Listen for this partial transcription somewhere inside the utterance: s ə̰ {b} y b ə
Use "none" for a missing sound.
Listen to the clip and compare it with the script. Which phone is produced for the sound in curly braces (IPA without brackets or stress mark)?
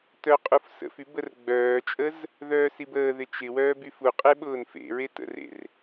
f